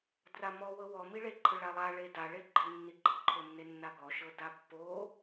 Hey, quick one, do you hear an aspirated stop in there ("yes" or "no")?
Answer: yes